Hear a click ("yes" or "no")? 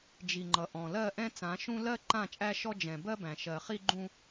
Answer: yes